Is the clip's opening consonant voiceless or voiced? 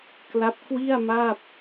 voiceless